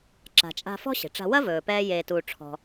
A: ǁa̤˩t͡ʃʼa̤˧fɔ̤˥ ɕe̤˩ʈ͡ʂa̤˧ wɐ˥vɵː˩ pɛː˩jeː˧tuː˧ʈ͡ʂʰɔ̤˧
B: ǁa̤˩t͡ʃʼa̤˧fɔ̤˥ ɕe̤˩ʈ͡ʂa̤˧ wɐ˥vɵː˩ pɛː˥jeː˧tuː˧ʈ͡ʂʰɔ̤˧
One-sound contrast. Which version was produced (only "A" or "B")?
B